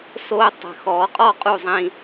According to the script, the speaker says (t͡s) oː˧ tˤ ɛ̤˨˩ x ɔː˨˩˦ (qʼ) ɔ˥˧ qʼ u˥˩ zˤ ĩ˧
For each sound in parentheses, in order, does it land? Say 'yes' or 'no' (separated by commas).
no, yes